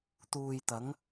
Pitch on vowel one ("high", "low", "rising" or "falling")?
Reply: low